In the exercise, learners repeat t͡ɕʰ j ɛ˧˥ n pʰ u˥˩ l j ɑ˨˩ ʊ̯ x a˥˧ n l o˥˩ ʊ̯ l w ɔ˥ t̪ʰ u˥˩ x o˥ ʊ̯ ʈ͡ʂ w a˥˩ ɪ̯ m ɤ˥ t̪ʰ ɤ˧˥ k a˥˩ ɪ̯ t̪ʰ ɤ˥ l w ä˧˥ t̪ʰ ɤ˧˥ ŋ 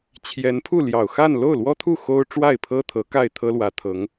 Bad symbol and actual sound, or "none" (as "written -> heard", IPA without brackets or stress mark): m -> pʰ